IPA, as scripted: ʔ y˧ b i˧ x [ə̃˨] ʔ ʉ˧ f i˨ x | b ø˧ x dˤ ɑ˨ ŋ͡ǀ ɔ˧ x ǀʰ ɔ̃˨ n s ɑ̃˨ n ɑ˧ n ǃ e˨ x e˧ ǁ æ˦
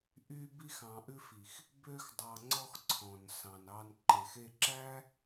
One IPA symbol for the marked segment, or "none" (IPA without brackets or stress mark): ɑ̃˨